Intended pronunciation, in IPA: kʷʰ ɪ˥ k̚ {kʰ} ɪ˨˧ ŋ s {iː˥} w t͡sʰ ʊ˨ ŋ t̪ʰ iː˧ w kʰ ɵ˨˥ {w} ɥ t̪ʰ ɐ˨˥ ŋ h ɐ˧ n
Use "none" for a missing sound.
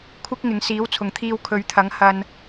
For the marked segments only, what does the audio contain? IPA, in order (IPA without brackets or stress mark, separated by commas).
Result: ŋ, iː˨˥, none